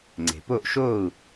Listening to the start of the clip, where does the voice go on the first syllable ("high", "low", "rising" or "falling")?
low